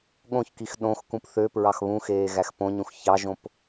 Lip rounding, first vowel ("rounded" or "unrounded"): rounded